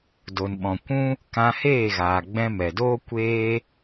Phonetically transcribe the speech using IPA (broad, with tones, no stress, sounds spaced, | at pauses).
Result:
d o˨ n ɓ ɔ̃˨ kʷ ũ˦ | k ã˧ h eː˦˨ ɣ aː˨ ɡ͡b ɛ̃˧ m ɛ˨ d oː˦ kʷ eː˦